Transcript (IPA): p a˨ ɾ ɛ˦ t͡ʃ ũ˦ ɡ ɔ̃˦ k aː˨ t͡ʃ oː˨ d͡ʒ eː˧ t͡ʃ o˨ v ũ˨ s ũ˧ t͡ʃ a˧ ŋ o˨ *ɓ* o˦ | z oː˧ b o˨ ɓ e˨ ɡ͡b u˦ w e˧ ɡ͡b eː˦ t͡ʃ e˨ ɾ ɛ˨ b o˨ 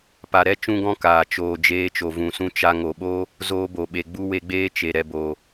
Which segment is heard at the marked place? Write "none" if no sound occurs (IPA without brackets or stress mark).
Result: ɓ